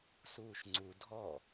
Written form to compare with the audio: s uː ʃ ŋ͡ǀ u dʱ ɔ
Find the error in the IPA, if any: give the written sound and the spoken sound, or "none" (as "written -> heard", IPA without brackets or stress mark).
none